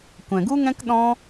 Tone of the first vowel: low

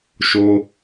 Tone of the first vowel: high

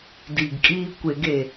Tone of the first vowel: low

